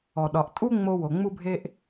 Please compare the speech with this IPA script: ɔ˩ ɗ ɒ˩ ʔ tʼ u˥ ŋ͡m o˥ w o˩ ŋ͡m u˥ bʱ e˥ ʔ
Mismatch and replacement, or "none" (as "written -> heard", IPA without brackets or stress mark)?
none